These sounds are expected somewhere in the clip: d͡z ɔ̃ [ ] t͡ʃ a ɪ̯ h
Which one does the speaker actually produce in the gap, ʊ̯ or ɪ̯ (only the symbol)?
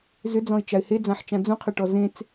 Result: ɪ̯